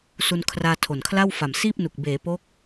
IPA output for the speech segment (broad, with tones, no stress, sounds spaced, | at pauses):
s u˧ n kʰ r aː˧ tʰ o˨˩ n kʰ l a˥˩ w f a˨˩ m s iː˥˩ p̚ n u˨˩ k̚ b eː˩˦ p o˦˥ k̚